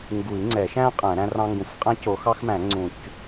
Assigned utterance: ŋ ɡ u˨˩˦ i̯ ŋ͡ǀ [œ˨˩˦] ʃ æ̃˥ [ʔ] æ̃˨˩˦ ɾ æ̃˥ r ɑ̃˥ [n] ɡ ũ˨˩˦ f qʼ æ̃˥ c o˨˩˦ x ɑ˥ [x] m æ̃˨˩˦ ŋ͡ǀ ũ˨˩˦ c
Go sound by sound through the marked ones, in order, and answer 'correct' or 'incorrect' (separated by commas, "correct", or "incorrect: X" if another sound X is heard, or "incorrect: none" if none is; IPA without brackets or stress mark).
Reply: incorrect: ɛ˨˩˦, incorrect: qʼ, incorrect: ŋ, correct